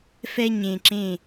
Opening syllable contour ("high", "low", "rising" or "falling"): high